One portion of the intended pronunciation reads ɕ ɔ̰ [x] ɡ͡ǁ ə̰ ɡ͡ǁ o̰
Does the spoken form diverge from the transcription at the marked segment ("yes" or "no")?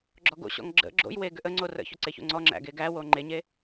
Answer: yes